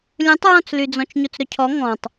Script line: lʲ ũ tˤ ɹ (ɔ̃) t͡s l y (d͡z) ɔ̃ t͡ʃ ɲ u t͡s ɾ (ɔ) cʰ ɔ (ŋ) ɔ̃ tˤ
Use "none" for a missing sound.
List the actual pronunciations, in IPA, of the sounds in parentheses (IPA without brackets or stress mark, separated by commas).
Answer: ɔ̃, d͡z, ɵ, ŋ